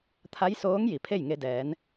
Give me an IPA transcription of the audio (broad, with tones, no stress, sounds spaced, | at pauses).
t̪ʰ a˧˥ j s oː˧˥ ŋ j i˩˧ pʰ e˥˨ j ŋ e˧ d ɛː˩˧ n